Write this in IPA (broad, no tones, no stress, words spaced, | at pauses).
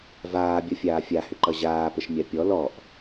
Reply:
vaːbʲʌfʲaː fʲahʏǃʌ ʑaːpəʃmʲa pʲɔ lɔʔ